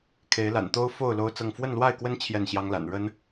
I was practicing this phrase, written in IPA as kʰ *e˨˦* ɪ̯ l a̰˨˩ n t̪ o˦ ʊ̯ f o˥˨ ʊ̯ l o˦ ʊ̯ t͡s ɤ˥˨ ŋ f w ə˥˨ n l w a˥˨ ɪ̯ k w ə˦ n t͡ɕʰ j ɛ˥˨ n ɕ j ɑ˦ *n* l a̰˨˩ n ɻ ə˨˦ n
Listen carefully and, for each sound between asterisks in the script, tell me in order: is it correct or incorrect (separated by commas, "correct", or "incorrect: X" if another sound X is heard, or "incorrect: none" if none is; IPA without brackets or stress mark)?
correct, incorrect: ŋ